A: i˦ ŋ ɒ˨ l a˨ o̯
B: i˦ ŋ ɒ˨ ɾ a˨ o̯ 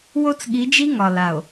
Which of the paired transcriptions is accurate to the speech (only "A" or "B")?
A